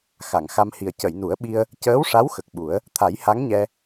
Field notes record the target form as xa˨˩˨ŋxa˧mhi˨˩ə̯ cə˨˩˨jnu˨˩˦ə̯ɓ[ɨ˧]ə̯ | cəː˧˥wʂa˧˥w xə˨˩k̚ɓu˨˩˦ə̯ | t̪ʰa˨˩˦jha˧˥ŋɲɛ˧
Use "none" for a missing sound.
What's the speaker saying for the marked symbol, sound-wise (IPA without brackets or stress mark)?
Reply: i˧